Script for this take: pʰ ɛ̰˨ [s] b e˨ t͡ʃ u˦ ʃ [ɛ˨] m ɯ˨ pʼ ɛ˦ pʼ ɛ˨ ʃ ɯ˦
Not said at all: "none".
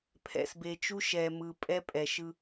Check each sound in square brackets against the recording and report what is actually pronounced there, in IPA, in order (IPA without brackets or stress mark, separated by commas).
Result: s, ɛ˨